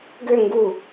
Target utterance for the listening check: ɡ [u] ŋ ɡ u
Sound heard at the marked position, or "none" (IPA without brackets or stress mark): ø